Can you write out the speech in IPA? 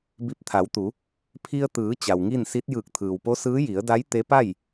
b i˧˩ p̚ t̪ʰ a˩˧ w t̪ u˩˧ | pʰ i˧ ə̯ t̪ ɯː˩˧ t͡ɕ a˩ w ŋ i˥˨ n s i˧˥ t̚ j ɯː˧˩ k̚ t̪ʰ ɯː˩ w p o˧˥ s ɯː˧˥ j i˩˧ ə̯ d a˧˥ j t̪ e˧˥ p a˥˨ j

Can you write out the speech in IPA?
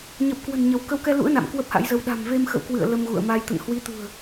ɲ ə˨˩ p̚ k w ə̤˨˩ n ɲ ə˨˦ w k ə˨˦ w k ɛ˧ l ṵ˧˥ ə̯ n a̰˧˨ m k w ə˦˥ p̚ h a̰˧˥ j z ə˧ w ɗ a̤˨˩ m v e˧ m x ə̰˧˨ w k w ɨ̰˧˨ ə̯ l ə˧ m ɣ ṵ˧˨ ə̯ m a˧ j t̪ ə̰˧˨ n h w i˨˦ t̪ ṳ˨˩ ə̯

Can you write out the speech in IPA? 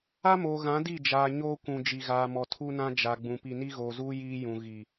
a˦ m oː˨ ɣ ã˨˦ d i˦˨ d͡ʒ aː˨ ɲ oː˦ kʷ ũ˨ d͡ʒ i˨ ɣ aː˨ m ɔ˨ tʰ u˦ n ã˦ d͡ʒ a˨ ɡ͡b ũ˨ p i˨ n i˦ ɣ oː˨ z uː˦ j iː˦ j ũ˨ ɣ i˨

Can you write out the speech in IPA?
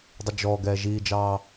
dˤ ɪ d͡ʒ ɔ ɡ ɛː ʒ iː d͡ʒ ɑː

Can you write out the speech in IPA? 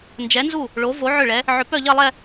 n d͡ʒ ɛ˨˥ n z u˥˩ | ɭ o˨˥ v o˨˥ ʕ ʏ˥˩ ɭ ɛ˨˥ | ʕ ʏ˨˥ p œ˥˧ ʎ ɐ˥˧ lˠ ɛ˥˧

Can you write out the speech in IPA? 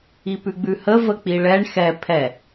i p ʉ ɡ͡b ʉ h ə v ə k͡p i ɭ ɛ ɳ x ɛ pʰ ɛ

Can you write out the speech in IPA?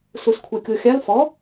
s u s kʷʰ ɛ kʲ o xʲ a l f ɔ

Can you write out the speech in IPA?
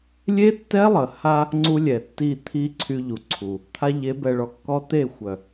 lʲ e˦ tː ɛ˦ lˠ ə˨ h a˦ | ŋ͡ǀ u˦ lʲ ɛ˨ tː i˦˨ t̪ʰ i˦ ǀʰ y˦ ʎ u˨ ǀʰ u˨ | t̪ʰ a˦ ʎ e˨˦ b ɛ˨ ɭ ɔ˨ kː ɔ˦ t̪ e˦˨ xʷ œ˨

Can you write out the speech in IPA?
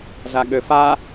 z a ɠ ø f a

